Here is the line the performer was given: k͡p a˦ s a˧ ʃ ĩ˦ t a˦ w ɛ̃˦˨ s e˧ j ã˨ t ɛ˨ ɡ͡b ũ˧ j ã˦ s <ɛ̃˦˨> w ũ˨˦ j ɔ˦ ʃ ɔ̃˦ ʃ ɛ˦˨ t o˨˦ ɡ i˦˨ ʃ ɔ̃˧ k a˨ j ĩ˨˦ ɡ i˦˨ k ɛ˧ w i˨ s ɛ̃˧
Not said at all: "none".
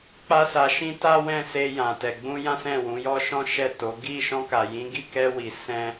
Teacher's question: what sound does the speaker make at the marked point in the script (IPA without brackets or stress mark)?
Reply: ɛ̃˦˨